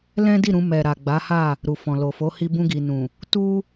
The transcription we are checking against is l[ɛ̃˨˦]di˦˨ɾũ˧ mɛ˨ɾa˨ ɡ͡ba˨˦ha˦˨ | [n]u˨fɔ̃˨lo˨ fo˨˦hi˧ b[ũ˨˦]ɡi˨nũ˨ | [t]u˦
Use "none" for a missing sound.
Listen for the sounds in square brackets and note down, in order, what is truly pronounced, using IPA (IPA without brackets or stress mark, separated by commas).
ɛ̃˦, ɾ, ũ˧, t